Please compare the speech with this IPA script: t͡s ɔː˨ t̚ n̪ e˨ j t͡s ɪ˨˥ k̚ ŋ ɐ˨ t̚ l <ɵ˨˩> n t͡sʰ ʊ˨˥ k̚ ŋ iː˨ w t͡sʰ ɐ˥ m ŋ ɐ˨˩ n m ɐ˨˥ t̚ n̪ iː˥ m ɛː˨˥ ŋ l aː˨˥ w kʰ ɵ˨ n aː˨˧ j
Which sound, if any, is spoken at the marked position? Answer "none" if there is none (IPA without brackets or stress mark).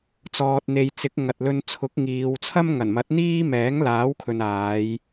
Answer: ɵ˧